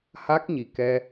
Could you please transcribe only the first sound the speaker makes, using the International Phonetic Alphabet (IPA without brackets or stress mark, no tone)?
h